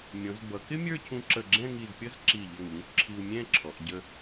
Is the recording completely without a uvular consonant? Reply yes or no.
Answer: yes